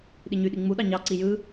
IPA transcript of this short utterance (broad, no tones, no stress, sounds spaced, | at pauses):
ɗ i ɲ y ɗ i ŋ͡m u ɗ ɑ ɲ ɑ ǀ i j ɯ